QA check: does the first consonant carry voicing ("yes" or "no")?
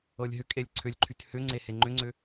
yes